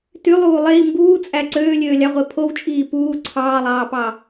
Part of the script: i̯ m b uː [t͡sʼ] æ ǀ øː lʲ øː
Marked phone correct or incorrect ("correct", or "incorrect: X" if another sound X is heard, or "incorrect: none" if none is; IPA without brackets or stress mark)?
correct